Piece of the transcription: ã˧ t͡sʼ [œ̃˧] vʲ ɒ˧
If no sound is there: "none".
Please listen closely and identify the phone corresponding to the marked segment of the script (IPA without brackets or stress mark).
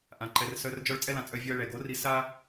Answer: œ˧